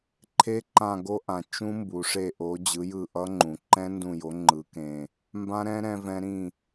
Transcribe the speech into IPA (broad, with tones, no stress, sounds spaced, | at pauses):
ǃʰ e˦˥ ǃ ã˦˨ ɡ o˦˥ ʔ ã˩˧ t͡ʃ ũ˦˥ m b u˩˧ ʂ e˦˨ ʔ o˨˥ d͡ʑ ɯ˨˥ j ɯ˦˨ ʔ ʌ˦˥ ŋ͡ǃ ũ˩˧ ǃ ɛ̃˦˥ n d ũ˦˨ j o˨˥ ŋ͡ǃ ɯ˨˥ k ẽ˦˨ | m b ã˦˥ ɾ ɛ̃˦˥ ɾ ɛ̃˦˥ v ɛ̃˦˥ ɾ ĩ˦˨